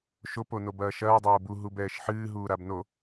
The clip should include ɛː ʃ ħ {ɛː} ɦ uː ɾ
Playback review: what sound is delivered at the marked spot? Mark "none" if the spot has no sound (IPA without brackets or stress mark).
ɨː